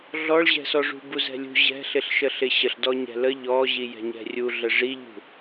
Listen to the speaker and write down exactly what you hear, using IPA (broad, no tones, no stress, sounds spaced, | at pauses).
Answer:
ɮ ɔ ɭ ʑ ɛ̤ s ɔ ʐ ṳ b u z ɛ̤ lʲ ṳ ʑ ɛ̤ ɬ ɪ ɬ ʃ ə ɬ ɪ ɕ ə ɬ d ɔ ɲ ɛ̤ l ə ʎ ɔ ʑ i j ɛ̤ ɲ ɛ̤ rʲ u ɮ ə ʐ i ʎ ṳ